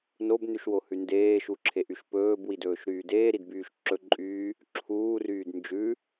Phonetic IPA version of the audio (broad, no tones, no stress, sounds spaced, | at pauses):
n o b n ʉ ʃ w o h ʉ n d eː ʃ u ǁʰ e ʔ y ʃ p ɵː b w i d ɵː ʃ ɾ yː d eː ɾ i d b yː ʃ ǁ ɵ ǃʼ yː | ǁʰ uː r yː d n d͡ʒ ʉ